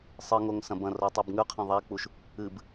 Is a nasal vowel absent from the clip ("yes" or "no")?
no